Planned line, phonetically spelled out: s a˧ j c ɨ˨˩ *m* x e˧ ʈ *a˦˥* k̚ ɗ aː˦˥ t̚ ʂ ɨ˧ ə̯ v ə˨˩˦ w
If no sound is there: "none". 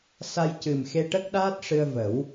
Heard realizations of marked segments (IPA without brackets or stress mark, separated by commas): m, ə˦˥